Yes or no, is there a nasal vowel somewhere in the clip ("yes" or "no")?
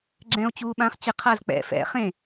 yes